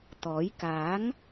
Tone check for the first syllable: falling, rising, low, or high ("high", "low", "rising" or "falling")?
rising